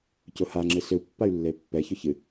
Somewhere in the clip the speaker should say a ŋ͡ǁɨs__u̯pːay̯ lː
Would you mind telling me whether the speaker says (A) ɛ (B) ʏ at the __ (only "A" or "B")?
B